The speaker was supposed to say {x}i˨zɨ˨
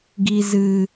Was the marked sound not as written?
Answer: yes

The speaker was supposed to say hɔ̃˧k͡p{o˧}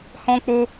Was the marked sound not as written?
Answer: no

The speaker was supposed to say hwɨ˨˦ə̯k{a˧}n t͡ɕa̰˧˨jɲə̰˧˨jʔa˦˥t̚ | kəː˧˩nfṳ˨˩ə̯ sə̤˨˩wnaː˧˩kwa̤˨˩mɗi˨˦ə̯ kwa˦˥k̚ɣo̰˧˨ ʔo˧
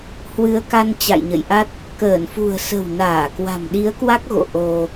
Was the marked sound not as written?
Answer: no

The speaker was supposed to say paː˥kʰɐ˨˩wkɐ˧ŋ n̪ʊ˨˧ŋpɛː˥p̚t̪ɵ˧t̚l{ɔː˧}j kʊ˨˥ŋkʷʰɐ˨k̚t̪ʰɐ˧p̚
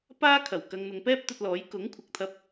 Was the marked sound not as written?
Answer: yes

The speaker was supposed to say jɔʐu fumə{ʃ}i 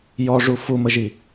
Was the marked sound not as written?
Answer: yes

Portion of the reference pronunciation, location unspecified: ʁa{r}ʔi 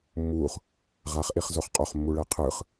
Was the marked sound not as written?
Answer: yes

